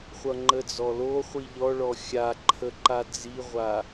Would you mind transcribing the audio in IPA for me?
χʷ ʌ ŋ͡ǃ ə d͡z ɔ l o χʷ i ʎ ɔ ɭ ɔ xʲ a ǃʰ ə ǃ a d͡z i ʁʷ a

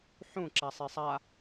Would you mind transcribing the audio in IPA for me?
ħ ũ ǁ a sˤ e sˤ a

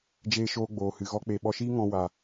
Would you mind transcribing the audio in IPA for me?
d͡ʒ eː˧ ʃ oː˧ ɡ͡b oː˨ h ɨ˨ ɣ ɔ˦ k͡p e˧ ɓ ɔ˧ ʃ iː˦ ŋ ɔ̃˧ w a˨

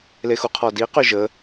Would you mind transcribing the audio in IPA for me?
l e x u qʰ ɔ d i q y ʒ ə

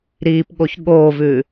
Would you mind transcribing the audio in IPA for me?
ɾ iː p ɠ o ç ɠ oː v ʉː

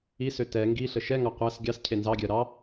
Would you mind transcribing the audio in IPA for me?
i s ø t ɛ ŋ ɡ i ɬ ə ʃ ɛ ŋ ɑ qʷ æ s ɡʲ ɑ s cʰ e n z ɑ ɡʲ ɜ ɾ ɑ

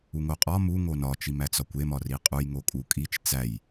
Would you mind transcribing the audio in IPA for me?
u ŋ o qʼ ɒ m u ŋ o n ɒ t͡ʃ i m æ t͡s ɒ kʷ e m ɒ r i qʼ u j ŋ o kʼ u kʼ i t͡ʃ t͡s æ j

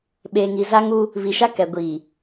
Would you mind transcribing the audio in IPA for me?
ɓ eː˨ ŋ i˨ z a˦ ŋ u˦ | β i˨ ʃ a˦ k ɛ˨ ɡʷ iː˨

